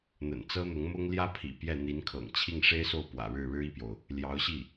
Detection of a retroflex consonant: present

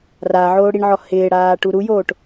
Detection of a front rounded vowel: absent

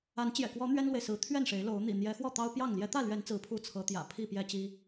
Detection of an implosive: absent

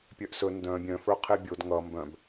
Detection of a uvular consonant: present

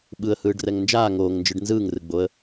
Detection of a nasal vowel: absent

